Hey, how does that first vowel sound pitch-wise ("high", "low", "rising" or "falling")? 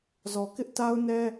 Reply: low